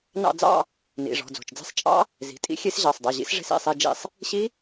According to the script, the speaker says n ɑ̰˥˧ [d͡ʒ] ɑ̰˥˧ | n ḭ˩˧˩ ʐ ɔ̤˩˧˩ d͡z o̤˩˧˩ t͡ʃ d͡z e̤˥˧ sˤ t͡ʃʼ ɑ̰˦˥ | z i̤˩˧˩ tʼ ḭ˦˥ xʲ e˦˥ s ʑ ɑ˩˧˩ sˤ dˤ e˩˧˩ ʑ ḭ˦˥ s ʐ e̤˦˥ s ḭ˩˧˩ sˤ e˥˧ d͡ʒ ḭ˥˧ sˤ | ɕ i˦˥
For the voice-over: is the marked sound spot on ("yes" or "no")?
no